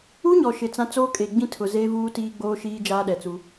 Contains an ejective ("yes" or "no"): yes